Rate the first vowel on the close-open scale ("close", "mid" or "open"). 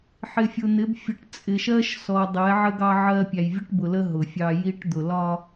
close